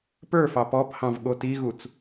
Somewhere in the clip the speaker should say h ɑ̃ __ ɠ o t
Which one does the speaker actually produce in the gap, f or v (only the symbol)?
v